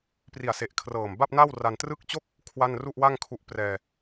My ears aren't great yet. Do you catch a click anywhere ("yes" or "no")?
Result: no